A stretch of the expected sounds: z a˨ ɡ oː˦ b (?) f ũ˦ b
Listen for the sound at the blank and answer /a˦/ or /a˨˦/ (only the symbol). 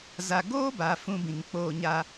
a˨˦